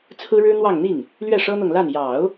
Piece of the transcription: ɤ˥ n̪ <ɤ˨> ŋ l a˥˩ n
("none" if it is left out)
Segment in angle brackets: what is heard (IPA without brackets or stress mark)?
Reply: ɤ˨